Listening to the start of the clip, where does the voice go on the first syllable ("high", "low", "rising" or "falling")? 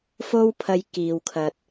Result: high